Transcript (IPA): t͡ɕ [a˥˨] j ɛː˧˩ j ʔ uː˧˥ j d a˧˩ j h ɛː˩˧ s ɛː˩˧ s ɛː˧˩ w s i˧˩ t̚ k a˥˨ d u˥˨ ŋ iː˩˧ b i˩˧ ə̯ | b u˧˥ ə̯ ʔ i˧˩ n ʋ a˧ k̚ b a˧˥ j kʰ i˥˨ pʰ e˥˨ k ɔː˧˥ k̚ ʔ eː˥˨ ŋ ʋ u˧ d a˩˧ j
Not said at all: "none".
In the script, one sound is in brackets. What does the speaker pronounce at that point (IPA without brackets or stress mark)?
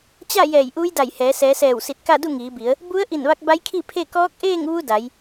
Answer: a˥˨